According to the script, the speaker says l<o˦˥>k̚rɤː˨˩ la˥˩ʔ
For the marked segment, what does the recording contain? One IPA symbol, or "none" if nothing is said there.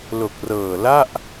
o˨˩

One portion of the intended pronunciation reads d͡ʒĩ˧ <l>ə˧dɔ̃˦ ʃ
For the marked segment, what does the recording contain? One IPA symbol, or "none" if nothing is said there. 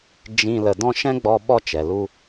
l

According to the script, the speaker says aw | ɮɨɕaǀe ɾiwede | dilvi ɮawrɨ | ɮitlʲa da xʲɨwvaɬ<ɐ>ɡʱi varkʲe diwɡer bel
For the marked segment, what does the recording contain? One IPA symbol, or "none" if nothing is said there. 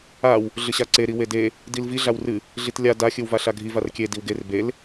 a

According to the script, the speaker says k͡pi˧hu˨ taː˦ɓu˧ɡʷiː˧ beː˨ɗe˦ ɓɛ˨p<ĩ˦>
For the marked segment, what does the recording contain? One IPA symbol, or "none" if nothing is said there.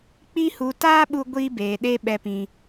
ĩ˨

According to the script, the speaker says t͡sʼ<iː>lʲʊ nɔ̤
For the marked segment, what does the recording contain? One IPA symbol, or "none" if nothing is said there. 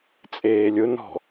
eː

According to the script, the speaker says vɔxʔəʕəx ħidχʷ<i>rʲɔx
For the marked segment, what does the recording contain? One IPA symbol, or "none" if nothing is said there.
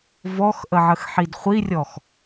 i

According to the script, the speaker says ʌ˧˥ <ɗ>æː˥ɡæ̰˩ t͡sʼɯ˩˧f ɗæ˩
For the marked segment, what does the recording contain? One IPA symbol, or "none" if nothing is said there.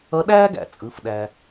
ɗ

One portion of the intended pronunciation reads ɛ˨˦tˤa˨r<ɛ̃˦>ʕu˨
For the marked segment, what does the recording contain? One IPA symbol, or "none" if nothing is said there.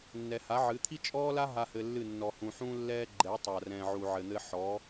ɛ̃˨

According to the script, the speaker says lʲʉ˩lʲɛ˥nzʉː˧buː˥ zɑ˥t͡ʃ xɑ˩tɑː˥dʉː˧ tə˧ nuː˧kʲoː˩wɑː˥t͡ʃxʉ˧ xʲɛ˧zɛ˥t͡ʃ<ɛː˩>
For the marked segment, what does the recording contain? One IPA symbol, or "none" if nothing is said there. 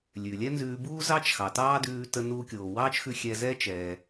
ɛː˩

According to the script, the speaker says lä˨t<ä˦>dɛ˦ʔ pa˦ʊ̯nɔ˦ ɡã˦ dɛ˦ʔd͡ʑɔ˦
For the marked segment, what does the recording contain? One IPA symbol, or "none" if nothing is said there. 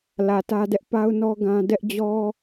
ä˦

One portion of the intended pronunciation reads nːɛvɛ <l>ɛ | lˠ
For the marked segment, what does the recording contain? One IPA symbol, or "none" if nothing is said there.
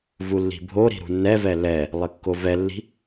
l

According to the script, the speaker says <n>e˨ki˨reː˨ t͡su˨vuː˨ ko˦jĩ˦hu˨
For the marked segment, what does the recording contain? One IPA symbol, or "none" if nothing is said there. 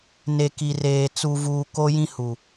n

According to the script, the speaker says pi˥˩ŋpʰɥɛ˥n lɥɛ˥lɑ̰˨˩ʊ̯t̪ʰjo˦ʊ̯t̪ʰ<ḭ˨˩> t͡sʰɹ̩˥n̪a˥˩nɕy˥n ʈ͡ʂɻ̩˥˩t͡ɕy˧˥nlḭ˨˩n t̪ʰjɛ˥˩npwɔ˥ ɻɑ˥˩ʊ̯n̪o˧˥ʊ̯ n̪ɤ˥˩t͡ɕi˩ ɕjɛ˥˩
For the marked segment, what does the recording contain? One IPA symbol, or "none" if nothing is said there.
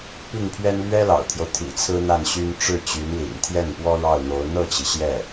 ḭ˨˩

